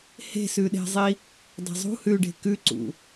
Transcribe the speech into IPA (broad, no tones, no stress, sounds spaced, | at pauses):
h e̤ s ʉ ɗ e̤ zˤ i | dˤ e̤ zˤ ṳ h ʉ ɖ e̤ k ʉ ǀ ṵ